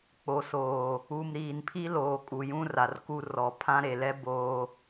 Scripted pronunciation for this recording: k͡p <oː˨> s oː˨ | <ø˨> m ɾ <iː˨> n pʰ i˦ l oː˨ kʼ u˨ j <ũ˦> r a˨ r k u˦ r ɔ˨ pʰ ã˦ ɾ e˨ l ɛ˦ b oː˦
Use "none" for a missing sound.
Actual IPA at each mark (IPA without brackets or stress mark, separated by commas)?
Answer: o˨, u˨, iː˨, ũ˦